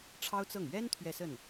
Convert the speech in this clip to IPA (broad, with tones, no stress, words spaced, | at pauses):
ʈ͡ʂʰɑ˥ʊ̯t͡sɤ˥˩ŋ ɥɛ˥n t̪ʰɥɛ˥˧sə˥˩n